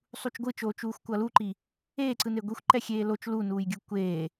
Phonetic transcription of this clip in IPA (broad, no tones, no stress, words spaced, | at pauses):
sˤut͡ʃɡʷɯt͡ʃoː t͡ʃuːxʷkʷʌluǃi | eːǀɯne ɡʷixʷǃɛ xʲeːlot͡ʃ lunuːjɡʲɯ kʷeː